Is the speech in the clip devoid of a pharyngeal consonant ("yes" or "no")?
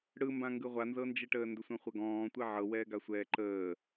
no